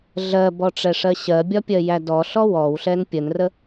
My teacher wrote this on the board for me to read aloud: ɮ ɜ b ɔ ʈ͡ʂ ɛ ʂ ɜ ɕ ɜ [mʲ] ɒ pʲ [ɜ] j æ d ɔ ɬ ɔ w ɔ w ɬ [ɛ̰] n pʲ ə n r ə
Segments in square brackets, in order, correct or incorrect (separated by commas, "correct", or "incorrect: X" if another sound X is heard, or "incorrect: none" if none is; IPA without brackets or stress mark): incorrect: bʲ, correct, incorrect: ɛ